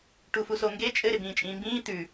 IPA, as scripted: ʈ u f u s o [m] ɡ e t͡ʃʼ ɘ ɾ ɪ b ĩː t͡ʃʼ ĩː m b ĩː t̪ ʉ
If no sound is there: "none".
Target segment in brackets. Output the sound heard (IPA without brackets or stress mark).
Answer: ŋ